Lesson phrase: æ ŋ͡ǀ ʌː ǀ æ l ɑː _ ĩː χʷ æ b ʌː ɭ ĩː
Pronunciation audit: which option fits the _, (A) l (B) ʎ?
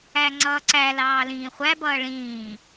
A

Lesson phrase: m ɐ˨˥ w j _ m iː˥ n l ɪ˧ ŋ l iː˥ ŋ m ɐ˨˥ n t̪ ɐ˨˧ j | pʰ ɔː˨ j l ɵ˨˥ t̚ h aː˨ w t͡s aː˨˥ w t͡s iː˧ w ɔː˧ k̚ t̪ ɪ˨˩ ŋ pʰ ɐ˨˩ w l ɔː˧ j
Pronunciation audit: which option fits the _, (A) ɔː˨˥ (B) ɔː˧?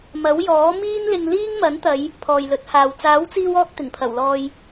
A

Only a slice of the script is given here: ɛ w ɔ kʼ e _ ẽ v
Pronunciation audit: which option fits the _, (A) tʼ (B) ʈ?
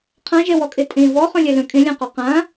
A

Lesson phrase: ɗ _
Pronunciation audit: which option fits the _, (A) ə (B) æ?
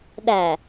B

